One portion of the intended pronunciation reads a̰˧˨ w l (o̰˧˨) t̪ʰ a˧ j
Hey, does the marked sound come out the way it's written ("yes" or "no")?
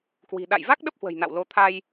no